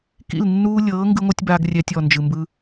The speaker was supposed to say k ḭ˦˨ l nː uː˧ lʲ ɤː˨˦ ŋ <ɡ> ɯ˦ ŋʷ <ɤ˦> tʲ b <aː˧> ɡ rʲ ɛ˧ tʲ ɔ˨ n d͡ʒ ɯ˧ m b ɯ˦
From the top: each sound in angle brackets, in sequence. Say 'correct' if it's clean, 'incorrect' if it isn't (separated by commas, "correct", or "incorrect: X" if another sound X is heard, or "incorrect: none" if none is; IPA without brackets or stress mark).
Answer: correct, correct, correct